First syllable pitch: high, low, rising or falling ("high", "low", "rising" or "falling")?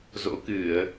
rising